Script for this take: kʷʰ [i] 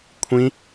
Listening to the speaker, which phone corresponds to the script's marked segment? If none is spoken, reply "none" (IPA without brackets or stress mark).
ĩ